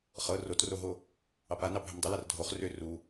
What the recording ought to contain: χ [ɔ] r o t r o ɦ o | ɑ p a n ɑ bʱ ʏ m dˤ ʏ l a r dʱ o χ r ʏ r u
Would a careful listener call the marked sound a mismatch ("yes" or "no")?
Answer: yes